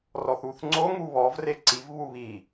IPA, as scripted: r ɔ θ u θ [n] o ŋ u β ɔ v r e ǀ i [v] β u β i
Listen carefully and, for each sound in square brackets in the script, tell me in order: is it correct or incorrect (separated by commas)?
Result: incorrect, correct